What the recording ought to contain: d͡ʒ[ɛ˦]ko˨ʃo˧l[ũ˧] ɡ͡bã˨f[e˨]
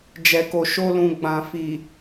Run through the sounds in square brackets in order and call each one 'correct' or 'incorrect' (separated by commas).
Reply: incorrect, incorrect, incorrect